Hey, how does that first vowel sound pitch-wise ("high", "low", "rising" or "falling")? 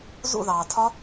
falling